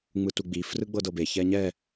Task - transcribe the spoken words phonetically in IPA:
ŋ͡m ɯ t u ɡ͡b i f r ɯ ɡ͡b ɤ d ɤ b e ç ɛ ɲ ɛ

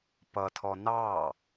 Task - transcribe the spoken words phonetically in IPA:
p ʌ tʰ ɔ n ɑː

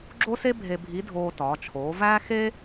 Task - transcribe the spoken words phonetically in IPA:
ɡ͡ǁ o˥ s e˥ bʱ e˧ bʱ i˧˥ dʱ oː˧ t ɒː˩˧ t͡ʃʰ oː˩˧ v æː˥ x e˥

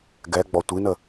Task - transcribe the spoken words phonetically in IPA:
ɡ ɛ ɡ͡b ɔ tʷ i n ə

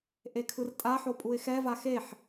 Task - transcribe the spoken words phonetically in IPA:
ʔ e kʰ ɯ r tʼ a ħ o pʼ u ɪ̯ x ɛ v a x e ħ

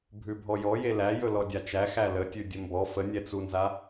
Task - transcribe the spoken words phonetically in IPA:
bʱ ʉ bʱ ɔ j ɔ j e l æ j ɵ l ɔ dʲ a t͡ʃ æ x æ l ə tʲ ʉ dʲ ə m b ɔ f ə nʲ ɛ t͡s u n z a

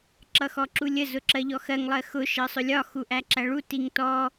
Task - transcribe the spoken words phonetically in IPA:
ǁ ʌ x ɔ ǁ u lʲ ə z ʊ ǁ ɜ ʎ ɔ x ɜ ŋ lˠ ɜ x ʊ ʃ ɜ sˤ ʊ lʲ ɒ x u ʔ æ ǁ æ ɭ u t i ŋ t ɔ

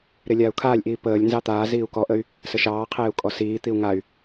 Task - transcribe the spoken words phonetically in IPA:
ɾ e lʲ aː u̯ kʰ aː lʲ ʔ iː p əː lʲ n z ɑ t̪ aː z iː u̯ k ɔ ʔ ə y̯ | s ə ʃ ɑː qʰ eː u̯ kʼ ɔ s iː t̪ i u̯ ŋ a y̯

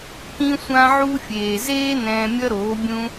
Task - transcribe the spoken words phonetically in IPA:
k ĩ˦ sʷ ã˦ ʕ u˦ fʲ eː˨ z eː˦ n ɛ̃ː˧ mʲ ʌ˦ ɾ oː˨˦ bʲ ũ˦

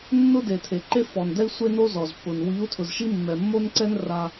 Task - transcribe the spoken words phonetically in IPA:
nː ʊ˦ d e˨ tʰ e˨ ǃ e˦ f ɔ˨ n d ɛ˦ i̯ sʷ e˦ n o˦ z ɔ˨ z pː ʊ˨ n w i˨˦ u̯ tʰ ʊ˨ z ʃ i˦ mː ɛ˨ mː o˦ n ǀ ɛ˦ n r a˦

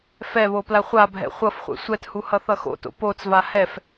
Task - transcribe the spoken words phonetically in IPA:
f ɛ β o p l a χʷ a bʱ ɛ̰ χʷ ʌ f χʷ ɛ̰ sʷ ɛ t h u h ʌ θ ʌ x o̰ t o̰ p o t͡s v a h ɛ f

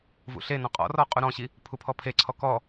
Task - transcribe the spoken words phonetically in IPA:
v ṵ ɬ e n ɔ̃ qʼ ɔ̰ r ɔ qʼ u ɾ ɔ̃ ɕ i | pʰ u pʰ ɔ pʰ e ǀʰ ɔ k ɔ

